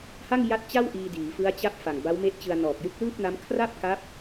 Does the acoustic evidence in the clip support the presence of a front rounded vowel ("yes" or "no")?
no